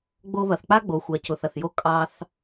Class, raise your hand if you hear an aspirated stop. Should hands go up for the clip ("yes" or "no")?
no